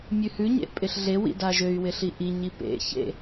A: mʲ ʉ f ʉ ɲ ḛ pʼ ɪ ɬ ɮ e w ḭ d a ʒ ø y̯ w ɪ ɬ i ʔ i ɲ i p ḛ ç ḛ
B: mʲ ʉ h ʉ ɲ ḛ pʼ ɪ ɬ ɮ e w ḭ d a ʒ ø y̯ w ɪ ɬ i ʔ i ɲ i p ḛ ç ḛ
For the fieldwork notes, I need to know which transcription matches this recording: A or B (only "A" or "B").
B